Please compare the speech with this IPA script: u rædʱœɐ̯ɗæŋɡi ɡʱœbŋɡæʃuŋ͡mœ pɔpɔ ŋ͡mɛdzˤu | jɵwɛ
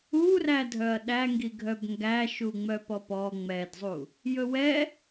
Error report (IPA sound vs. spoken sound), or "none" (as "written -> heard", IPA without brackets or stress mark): none